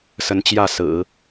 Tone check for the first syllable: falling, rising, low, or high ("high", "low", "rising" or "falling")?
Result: rising